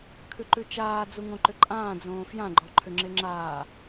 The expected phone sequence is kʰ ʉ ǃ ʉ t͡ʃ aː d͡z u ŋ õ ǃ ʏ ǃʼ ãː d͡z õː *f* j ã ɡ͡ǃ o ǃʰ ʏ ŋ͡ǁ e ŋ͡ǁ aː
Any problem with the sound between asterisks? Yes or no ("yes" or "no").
no